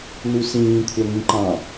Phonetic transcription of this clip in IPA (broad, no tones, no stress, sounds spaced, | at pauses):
n u s ĩː kʷʰ æ ŋ ĩ ǃ ɑ̃